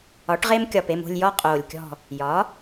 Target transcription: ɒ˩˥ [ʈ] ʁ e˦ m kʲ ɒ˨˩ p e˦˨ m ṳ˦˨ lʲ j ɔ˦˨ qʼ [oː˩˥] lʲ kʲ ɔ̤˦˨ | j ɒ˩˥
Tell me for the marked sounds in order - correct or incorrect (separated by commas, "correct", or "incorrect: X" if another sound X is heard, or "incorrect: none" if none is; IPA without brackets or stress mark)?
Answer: correct, incorrect: oː˨˩